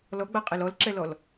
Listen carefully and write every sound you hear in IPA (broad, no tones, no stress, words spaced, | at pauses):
lɔɡ͡baqʼel ɔlǁɛlɔl